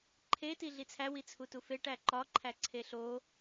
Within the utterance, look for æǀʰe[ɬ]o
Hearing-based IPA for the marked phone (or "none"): ɬ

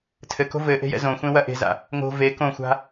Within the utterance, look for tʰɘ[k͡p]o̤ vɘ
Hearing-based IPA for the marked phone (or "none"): k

